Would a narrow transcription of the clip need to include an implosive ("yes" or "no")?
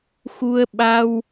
yes